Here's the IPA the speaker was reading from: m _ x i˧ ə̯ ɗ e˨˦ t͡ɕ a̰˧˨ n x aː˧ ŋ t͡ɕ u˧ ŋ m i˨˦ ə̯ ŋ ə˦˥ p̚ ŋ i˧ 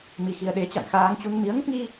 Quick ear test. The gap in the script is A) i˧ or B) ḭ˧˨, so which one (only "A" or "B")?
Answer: A